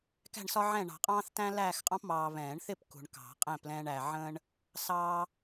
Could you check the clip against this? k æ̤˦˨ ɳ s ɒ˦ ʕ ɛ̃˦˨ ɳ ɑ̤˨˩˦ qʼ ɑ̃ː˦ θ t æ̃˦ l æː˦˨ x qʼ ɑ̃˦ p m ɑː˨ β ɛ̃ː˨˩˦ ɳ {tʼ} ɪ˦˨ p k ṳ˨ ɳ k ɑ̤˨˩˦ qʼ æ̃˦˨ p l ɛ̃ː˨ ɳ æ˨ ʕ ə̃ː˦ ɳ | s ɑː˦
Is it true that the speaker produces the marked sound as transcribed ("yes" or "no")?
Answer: no